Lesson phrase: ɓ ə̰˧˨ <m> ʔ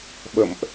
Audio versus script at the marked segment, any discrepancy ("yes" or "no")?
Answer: no